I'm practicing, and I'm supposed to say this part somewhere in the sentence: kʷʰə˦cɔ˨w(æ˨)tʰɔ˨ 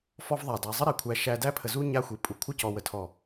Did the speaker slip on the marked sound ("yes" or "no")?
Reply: yes